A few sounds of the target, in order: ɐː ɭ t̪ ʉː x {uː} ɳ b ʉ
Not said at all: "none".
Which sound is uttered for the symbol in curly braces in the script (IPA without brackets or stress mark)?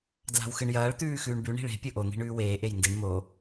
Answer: ʉː